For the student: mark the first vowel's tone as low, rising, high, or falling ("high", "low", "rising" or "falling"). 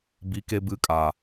rising